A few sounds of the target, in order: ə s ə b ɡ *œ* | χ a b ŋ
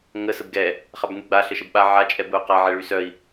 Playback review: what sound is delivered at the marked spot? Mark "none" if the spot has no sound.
ɛ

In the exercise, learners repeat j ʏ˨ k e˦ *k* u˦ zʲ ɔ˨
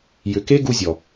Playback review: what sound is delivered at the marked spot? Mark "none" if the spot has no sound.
ɡ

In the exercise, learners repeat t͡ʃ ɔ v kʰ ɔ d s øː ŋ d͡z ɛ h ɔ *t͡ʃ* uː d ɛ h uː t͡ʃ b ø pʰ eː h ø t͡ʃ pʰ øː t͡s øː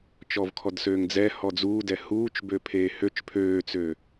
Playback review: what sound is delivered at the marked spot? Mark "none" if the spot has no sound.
d͡z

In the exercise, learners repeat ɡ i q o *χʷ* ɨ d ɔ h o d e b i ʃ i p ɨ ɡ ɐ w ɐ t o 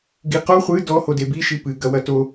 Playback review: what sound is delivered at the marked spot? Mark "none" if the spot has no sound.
χʷ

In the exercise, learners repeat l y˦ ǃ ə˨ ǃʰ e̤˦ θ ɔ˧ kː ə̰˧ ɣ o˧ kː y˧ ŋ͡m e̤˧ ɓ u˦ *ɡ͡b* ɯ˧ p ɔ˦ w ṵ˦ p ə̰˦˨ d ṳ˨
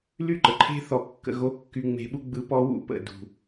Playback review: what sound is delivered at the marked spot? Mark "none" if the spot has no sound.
ɡ͡b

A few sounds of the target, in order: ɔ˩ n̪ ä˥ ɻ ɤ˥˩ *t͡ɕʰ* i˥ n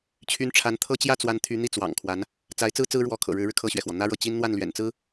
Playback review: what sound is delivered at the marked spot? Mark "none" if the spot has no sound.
t͡ɕ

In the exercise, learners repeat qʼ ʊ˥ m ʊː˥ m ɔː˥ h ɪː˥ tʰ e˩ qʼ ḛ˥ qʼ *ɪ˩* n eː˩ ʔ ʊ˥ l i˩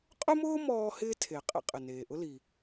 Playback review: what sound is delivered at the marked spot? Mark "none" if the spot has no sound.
ɪ˩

